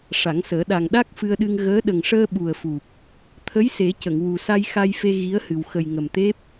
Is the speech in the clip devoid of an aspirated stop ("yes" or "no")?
no